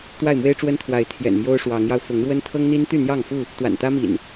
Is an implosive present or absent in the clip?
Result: absent